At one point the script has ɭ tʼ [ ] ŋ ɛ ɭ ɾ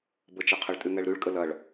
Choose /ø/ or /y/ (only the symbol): y